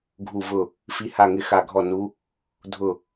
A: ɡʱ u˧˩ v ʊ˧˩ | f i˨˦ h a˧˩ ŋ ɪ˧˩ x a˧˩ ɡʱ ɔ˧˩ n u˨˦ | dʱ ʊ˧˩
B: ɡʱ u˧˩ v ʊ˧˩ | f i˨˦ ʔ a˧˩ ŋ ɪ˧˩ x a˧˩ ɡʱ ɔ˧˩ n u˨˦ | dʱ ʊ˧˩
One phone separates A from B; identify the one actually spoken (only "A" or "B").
A